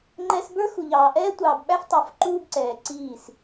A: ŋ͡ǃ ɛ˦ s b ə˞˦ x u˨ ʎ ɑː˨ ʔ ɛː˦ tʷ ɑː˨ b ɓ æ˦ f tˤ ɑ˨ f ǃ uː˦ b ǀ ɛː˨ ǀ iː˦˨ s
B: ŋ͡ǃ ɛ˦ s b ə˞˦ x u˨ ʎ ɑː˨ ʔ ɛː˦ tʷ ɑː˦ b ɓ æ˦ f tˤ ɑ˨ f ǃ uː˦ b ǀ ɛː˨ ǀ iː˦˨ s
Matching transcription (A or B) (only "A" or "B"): A